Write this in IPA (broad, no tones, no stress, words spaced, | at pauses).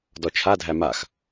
dɔt͡ʃʰadʱæ max